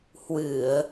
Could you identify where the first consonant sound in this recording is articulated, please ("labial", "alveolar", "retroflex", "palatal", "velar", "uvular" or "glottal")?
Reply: glottal